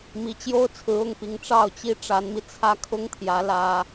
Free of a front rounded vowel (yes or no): yes